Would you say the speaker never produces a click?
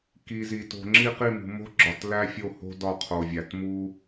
no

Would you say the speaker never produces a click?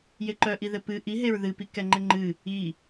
no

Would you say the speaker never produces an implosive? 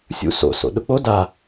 no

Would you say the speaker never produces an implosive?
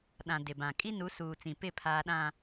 no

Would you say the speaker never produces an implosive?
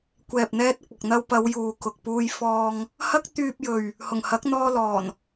yes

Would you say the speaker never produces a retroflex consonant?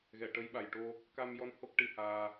no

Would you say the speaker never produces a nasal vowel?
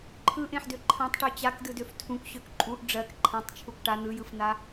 no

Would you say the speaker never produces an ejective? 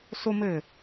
yes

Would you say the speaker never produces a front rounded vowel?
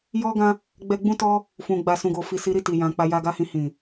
yes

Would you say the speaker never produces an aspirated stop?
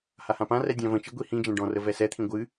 no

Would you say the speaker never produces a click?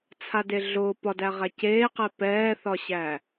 yes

